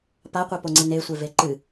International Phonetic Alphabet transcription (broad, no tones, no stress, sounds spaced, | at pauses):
p a qʷ e p o ŋ͡ǀ i n e sʷ e v e ǃ ɨ